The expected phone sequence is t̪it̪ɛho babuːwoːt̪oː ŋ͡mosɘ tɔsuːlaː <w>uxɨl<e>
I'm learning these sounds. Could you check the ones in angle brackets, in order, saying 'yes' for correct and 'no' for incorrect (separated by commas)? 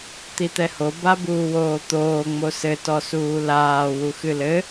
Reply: yes, no